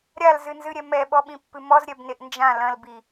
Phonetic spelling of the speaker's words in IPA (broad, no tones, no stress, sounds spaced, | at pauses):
ɾʲ a l z ɨ n z ɨ ɾʲ ɛ m ɛ ɓ ɔ ɓ ĩ pː ɨ m ɔ z ɾʲ ɛ b n e ʔ n d͡ʒ ã l ɐ̃ l b i